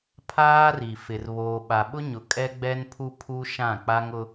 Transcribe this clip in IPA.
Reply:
pʰ aː˦ r i˨ f ɪ˨ r β oː˨ ɓ a˨ ɓ ʊ˦ ɲ ʊ˨ kʼ ɛ˦ ɡ͡b ɛ˦ n pʰ u˦ pʰ u˦ ʃ ã˦˨ k͡p a˦ ŋ ʊ˦

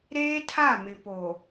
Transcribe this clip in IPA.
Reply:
ɾ eː˦ tʰ a˦˨ m ɪ˨ p o˨

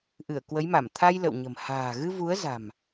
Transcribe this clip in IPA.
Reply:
ʔ ɨ˧˩ ə̯ k w ə˨˦ j m a˧˩ m t̪ʰ a˧ j l ə̰˧˨ w ɲ ə̤˨˩ m h a̤ː˨˩ ɣ ɨ˧ v u˨˦ ə̯ z a̤˨˩ m

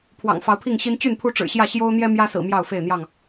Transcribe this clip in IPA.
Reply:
pʰ w ɑ̰˨˩ ŋ f ɑ˨˦ ʊ̯ pʰ i˥˨ ŋ ɕ i˦ n t͡ɕ y˥˨ n pʰ u˦ ʈ͡ʂ ɻ̩˨˩ ɕ j ä˥˨ ɕ j o˦ ʊ̯ n̪ j ɛ˦ m j ä˦ s ɹ̩˨˩ m j ɑ˥˨ ʊ̯ f e˥˨ ɪ̯ n̪ j ɑ˥˨ ŋ

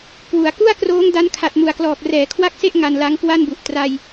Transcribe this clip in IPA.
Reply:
k w u˩˦ a̯ k u˥˩ a̯ k r oː˦˥ ŋ d a˦˥ n kʰ a˨˩ t̚ m u˨˩ a̯ k l ɔː˨˩ k̚ r ɛː˩˦ kʰ w a˥˩ k̚ s e˥˩ ʔ ŋ a˧ n l a˦˥ ŋ k w a˥˩ n b u˨˩ ʔ t r a˧ j

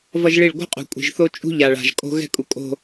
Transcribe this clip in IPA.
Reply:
v ʌ˦ ʒ ɭ i˦˨ ɭ ɡʷ ɛ̤˦ qʼ ṳ˨ kʷʼ i̤˨ ʒ θ o˦ t͡ʃʼ ṳ˦ ʎ a˨ ɭ a̤˨ ʒ kʼ o̤˦ ɣ ɛ̤˦ kʼ u˨ kʼ o̤˨

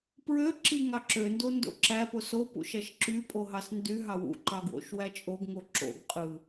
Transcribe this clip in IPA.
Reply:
p ɹ ø ǁ i ŋ ɑ ǁ ø n d o n d o̰ ǁ æ p o s o p ṵ ʃ æ ʃ ǁ y pʼ o ɦ ɑ s n d y ɦ ɑ w ṵ ǃ ɑ ɡ w o̰ ʃ w æ t͡ʃʼ o ɡ ŋ o ǁ o̰ ɡ qʼ ɯ

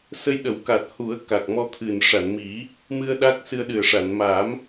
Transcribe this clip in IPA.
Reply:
s ə˧ j ɗ ə˨˩˦ w k a˨˩ t̚ h u˨˩˦ ə̯ k a˨˩ k̚ m ɔ˧ t̪ʰ ɨ˨˩ n ʂ a˨˩˨ n m i˨˩˦ | m ɨ˧ ə̯ ɗ a˦˥ k̚ s ɨ˧ ə̯ ɗ ɨ˨˩ ə̯ ʂ a˨˩˨ n m a˨˩˦ m

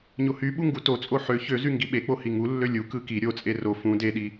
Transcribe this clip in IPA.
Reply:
ɲ o h y ɓ u ŋ ɡ u t o t͡sʼ o ħ ø ç ø z y ŋ ɡ i ɓ e k͡p o h i ŋ u lː ø lʲ u k ɯ k i ɾʲ o t͡sʼ e r o f ũ d e ɗ i

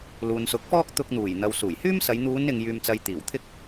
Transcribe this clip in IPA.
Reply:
l uː˨ n s ʊ˨˥ k̚ f ɔː˥ k̚ t̪ ʊ˧ k̚ n̪ uː˨˩ j n̪ ɐ˨ w s uː˨˩ j h yː˥ m s ɐ˨˧ j n̪ uː˨˧ n ɪ˨ ŋ j yː˨ m t͡s ɐ˨ j t̪ iː˨˩ w t̪ʰ ɪ˥ k̚

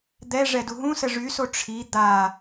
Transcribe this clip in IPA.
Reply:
d̪ ɛ ʐ ɛ d u ɦ ũ s ə ʐ y s o ʈ͡ʂʰ i d̪ a

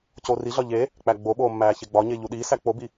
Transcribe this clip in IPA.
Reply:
c oː r i ɮ ɒ ʎ e | k͡p æ ɡ͡b o ɓ oː mː æː ç e ɡ͡b ɒ ɲ e ʎ u ɗ iː s æ k͡p o b i

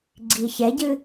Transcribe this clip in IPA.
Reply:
ɡ͡ǀ i ç ɛ ɟ ɨ

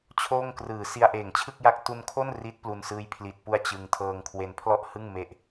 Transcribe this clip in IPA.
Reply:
t͡ɕʰ oː˥˩ ŋ k r ɯː˨˩ s i˧ a̯ ʔ eː˨˩ ŋ t͡ɕʰ ɯ˥˩ k̚ j a˦˥ k̚ t u˧ n kʰ o˥˩ n r i˦˥ t̚ p l u˧ n s ɯː˦˥ j pʰ l i˨˩ t̚ p u˧ a̯ t͡ɕ ɯ˧ ŋ tʰ ɤː˧ ŋ kʰ w e˧ n pʰ l ɔ˥˩ ʔ h ɯ˥˩ ŋ m e˥˩ ʔ

